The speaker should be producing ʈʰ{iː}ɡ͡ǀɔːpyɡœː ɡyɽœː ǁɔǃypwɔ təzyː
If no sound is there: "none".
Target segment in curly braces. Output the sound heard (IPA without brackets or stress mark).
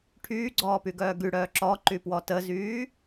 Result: yː